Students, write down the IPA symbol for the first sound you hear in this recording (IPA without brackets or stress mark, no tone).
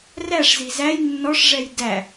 r